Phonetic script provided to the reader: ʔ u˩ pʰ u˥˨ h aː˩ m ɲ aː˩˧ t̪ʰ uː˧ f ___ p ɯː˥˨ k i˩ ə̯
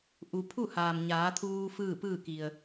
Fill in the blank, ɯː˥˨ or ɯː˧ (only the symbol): ɯː˥˨